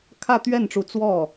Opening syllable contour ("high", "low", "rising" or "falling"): falling